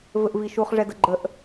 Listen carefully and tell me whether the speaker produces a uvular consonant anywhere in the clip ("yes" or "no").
yes